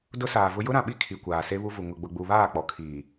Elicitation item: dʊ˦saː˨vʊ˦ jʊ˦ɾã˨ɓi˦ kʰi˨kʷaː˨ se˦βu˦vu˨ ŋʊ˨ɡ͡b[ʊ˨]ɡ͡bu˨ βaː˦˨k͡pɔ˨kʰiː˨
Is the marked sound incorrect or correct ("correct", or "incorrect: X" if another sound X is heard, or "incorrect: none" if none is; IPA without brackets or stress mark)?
correct